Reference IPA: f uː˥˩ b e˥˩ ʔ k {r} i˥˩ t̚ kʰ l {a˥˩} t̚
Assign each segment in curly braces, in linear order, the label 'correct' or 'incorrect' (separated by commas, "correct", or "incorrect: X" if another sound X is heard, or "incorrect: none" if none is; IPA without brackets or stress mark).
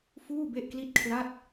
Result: incorrect: l, correct